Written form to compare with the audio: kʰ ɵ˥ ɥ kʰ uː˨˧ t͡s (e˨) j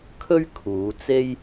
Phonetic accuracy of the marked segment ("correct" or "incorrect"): incorrect